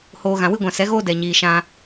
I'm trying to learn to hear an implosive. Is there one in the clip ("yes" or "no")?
no